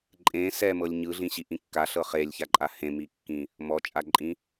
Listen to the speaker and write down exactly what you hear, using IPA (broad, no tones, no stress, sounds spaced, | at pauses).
ǃʼ ẽ s ɛ m ɤ lʲ ɲ ɯ ɮ ĩ ɕ i ʔ ĩ kː a ɬ ɤ χ e lʲ ç a ǃʼ a h ẽ m i kː ĩ | m ɔ t͡ʃʼ a ǃʼ ĩ